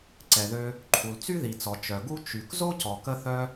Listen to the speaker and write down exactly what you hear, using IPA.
ǀɛ˩ðø˧ | ǃʰu˩lt͡sy˥ði˩t͡sɔ˩ t͡ʃœ˩ ɡu˥ t͡ʃy˩k zo˥cɔ˩kə˧ θœ˧

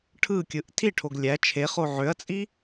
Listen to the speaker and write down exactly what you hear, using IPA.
ʈʰɯkʲɯʔ tʰiʈʰoɡ lʲæ t͡ʃʰeχo ʕøɐ̯t͡sʼi

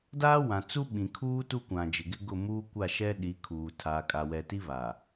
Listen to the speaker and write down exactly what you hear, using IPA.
daː˦wã˨t͡su˦ ɓĩ˨kʰuː˦ tu˦kʷã˨d͡ʒɪ˨ɡɪ˦ ɡʊ˦˨muː˦ kʷa˦˨ʃɛ˦ ɗi˨˦kʰuː˨ tʰaː˨kʼa˨wɛ˨ ti˦βa˨

